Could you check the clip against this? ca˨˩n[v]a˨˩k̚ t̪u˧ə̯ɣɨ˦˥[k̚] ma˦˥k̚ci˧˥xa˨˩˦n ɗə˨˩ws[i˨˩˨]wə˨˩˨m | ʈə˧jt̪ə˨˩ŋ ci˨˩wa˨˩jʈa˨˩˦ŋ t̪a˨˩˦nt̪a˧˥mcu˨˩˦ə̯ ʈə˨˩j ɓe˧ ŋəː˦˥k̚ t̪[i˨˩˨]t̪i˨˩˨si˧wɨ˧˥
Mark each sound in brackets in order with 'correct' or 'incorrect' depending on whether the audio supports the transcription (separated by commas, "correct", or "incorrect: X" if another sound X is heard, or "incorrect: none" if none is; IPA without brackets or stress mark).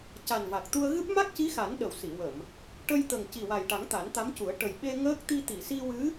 correct, incorrect: p̚, correct, incorrect: i˧